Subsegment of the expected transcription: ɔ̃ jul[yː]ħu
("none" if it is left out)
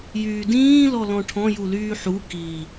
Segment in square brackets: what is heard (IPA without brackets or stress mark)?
yː